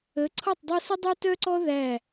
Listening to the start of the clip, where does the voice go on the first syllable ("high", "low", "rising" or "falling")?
rising